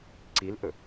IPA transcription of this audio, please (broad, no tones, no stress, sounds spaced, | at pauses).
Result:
ǀ i l ʔ ɵ